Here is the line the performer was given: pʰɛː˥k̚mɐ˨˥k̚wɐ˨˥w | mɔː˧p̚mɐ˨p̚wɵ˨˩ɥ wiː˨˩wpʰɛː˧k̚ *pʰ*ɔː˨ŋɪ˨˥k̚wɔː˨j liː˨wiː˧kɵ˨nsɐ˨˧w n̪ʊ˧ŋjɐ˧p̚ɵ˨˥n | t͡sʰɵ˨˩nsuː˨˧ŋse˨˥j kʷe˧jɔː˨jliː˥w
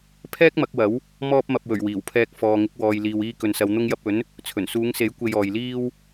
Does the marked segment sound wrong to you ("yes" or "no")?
yes